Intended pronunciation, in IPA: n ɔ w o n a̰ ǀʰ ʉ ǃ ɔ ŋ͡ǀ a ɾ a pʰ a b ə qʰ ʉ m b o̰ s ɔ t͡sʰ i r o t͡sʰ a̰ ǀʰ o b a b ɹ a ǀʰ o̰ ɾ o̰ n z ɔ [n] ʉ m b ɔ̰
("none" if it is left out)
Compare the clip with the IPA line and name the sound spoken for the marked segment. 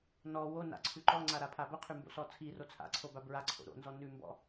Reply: n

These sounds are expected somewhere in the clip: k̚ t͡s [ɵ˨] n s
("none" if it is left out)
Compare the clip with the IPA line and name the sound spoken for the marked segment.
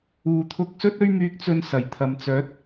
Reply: ɵ˧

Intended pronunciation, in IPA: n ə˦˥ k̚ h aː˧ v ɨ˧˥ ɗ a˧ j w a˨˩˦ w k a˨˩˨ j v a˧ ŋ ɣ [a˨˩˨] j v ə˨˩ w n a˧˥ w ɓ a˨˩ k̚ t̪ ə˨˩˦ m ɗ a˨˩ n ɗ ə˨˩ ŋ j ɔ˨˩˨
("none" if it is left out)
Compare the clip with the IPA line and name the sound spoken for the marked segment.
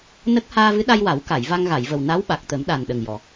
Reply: a˨˩˨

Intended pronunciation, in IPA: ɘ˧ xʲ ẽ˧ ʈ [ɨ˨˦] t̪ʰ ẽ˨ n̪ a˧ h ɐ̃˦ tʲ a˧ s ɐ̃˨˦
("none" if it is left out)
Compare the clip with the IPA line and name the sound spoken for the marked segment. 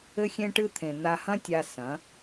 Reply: ɨ˧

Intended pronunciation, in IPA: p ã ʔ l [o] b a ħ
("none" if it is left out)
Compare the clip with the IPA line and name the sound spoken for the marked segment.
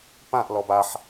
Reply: ɔ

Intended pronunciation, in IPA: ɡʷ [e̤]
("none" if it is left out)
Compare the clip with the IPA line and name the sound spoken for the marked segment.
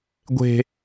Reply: e̤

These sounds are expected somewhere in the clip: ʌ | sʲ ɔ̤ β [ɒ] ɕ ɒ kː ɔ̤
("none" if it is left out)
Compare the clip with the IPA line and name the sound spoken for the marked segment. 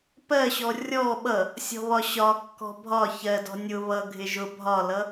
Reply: ɒ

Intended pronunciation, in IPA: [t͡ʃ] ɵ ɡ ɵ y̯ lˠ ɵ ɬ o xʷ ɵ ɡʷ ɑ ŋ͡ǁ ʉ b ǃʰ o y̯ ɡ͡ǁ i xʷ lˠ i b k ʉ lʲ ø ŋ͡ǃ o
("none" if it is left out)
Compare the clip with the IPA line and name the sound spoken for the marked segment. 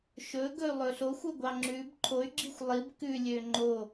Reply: ʃ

